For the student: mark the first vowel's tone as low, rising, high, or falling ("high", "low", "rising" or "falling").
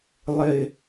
high